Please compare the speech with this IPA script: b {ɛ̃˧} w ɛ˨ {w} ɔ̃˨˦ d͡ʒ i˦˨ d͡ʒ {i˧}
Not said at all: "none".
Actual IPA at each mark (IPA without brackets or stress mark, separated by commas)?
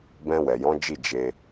ɛ̃˧, j, e˧